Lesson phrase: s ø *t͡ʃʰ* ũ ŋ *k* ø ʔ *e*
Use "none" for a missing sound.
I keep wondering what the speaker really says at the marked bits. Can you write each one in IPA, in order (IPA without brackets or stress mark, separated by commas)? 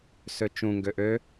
t͡ʃ, ɡ, ø